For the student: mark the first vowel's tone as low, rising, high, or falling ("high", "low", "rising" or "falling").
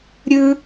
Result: low